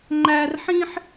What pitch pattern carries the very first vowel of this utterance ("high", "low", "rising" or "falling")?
high